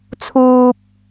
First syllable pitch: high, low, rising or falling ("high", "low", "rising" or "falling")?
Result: low